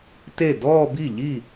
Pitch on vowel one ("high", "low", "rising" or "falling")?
falling